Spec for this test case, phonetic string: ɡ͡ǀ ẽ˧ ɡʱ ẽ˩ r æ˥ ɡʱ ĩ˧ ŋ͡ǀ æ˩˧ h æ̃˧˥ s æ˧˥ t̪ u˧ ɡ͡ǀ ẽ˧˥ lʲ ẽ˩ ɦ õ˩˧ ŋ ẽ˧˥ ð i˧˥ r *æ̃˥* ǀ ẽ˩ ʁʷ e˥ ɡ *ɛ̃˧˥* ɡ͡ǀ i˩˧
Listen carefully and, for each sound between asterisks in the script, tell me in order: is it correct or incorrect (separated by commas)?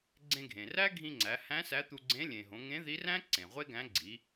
correct, incorrect